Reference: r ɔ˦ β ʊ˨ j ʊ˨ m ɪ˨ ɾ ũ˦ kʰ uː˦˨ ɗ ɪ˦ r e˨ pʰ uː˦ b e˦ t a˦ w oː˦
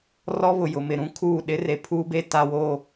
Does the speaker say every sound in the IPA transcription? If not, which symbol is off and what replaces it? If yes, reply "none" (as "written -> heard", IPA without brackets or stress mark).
none